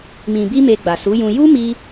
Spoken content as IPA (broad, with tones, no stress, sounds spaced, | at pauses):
m ĩ˨ b i˧ m e˧ ɡ͡b a˨ s u˨˦ j ũ˧ j u˦ m i˧